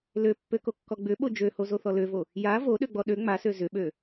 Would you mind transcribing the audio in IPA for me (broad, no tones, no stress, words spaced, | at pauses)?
løpːøkokːɔ ɡ͡bʏɓo d͡ʒøhozoθɔ løvo | ja voɗøɡ͡bɔ ɗø ŋ͡masø zʏɓø